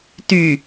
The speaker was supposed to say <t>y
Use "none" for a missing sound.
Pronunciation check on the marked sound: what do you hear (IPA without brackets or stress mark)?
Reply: t